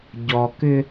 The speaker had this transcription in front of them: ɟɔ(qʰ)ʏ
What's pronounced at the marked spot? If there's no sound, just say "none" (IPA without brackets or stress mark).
k